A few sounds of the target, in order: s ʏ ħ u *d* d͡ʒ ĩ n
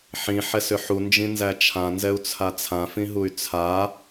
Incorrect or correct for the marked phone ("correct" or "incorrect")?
incorrect